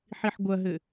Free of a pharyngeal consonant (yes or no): no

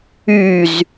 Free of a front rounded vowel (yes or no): no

